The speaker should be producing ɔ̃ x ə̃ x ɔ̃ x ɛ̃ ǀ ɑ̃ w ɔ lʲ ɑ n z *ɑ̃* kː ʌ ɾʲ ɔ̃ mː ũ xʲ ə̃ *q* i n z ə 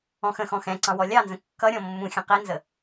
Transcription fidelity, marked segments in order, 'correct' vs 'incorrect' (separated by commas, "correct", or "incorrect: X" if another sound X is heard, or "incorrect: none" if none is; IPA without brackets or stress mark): incorrect: ə̃, correct